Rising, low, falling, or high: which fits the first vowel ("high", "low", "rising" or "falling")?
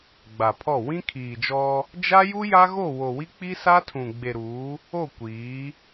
low